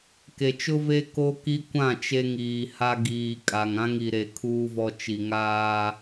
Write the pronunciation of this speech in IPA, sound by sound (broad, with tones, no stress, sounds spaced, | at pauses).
k e˨ t͡ʃ ʊ˦ v e˦ k o˦ k i˦ kʷ ã˦˨ t͡ʃ e˦ ŋ iː˨ h a˦ ɡ iː˨ kʼ a˨ ŋ ã˦ ŋ i˨ ɾ e˨ kʰ uː˦ v ɔ˦ t͡ʃ i˨ ŋ aː˦